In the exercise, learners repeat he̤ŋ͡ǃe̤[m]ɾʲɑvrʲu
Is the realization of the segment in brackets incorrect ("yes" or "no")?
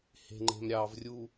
no